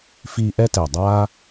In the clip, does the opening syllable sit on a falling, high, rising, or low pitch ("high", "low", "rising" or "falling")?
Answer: high